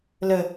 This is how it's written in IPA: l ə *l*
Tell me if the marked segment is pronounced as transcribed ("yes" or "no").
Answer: no